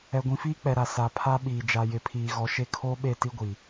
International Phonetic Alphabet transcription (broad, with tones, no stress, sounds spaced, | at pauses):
ɛ˨ ɡʷ ĩ˨ f iː˦ k͡p ɛ˨ ɾ a˨ s a˨ pʰ a˦ ɓ iː˨ d͡ʒ a˨ j ɪ˨ pʰ iː˨ ɣ ɔ˨ ʃ e˦ kʰ oː˦ ɓ e˦˨ t i˦ ɡʷ i˨